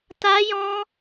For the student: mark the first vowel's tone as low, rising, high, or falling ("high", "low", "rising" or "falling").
high